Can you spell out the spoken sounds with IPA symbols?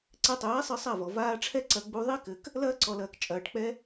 ǀ ɛ˧ tˤ ɛː˨˦ sˤ ɨ˧ sˤ a˦˨ v ɔ˨ v aː˧ ʈ͡ʂʰ ɛ˦ ǀ ɐ˧ ɡ͡b u˧ ðˤ i˦ k ɘ˨ k | l ɐː˦ ǀ ɔ˨ l ɐː˨ k t͡ʃʼ ɐː˨ ʈ k͡p ɛ˦

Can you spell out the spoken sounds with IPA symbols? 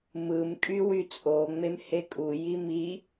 m ɯ m kʼ y w y t͡sʼ o ŋ͡m e m h e kʼ u j i m i

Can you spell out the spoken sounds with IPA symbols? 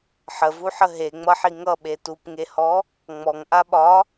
ħ ə v u ħ ə ɦ e ŋ͡m ʌ ħ i ŋ ʌ ɓ e t u p ŋ e h ɔ | ŋ͡m ɔ ŋ ʔ a ɓ ɒ

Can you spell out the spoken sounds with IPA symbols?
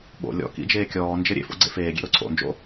ɓ o̰ lʲ ɔ̰ k ḭ d͡ʒ eː kʲ ɔː n d͡ʒ ɘ ɾʲ ḛ f o̰ ɡ͡ǀ ḛ f eː ɡʲ ḛ ɾ o ǀʰ o̰ n d͡ʒ o̰

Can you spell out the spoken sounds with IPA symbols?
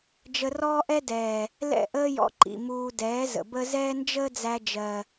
d͡ʒ ə˧ r ɔː˦ ʔ ɛ˦ d ɛː˨ | l ɛ̰˦˨ ʔ əː˦ j ɔ̰˧ ǃ ḭ˨ m uː˧ d ɛː˨˦ z ə̰˨ b ə˦ z ɛː˦ n d͡ʒ əː˦ d͡z æ˧ d͡ʒ ɜ˨

